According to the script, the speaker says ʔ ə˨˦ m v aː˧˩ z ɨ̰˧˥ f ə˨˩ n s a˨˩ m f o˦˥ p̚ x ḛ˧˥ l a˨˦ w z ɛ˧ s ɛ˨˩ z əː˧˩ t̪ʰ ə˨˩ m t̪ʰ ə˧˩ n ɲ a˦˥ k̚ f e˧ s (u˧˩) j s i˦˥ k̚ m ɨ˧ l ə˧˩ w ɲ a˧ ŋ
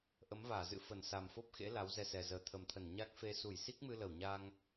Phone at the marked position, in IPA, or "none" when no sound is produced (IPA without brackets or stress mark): u˧˩